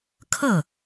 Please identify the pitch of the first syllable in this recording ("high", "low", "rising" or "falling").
falling